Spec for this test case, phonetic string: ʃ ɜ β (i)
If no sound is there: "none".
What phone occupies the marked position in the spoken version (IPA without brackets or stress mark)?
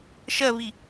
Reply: i